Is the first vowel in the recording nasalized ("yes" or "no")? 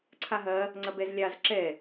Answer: no